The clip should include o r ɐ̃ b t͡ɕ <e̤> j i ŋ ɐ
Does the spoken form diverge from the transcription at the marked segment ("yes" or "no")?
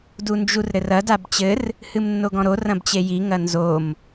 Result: yes